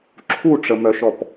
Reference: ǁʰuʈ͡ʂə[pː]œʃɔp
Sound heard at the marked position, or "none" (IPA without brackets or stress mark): m